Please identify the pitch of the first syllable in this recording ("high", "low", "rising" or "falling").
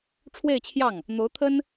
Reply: falling